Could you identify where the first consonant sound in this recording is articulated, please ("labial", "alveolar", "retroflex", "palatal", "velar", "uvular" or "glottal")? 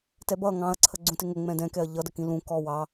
alveolar